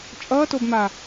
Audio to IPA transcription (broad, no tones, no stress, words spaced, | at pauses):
t͡ʃʼʌːtobma